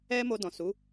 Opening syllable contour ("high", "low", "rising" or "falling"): high